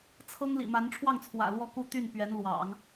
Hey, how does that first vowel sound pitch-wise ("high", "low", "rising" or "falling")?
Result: high